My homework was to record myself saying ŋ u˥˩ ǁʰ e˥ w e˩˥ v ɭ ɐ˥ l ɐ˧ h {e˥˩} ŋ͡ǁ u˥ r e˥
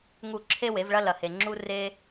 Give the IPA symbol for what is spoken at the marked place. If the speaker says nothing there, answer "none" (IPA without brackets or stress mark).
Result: e˧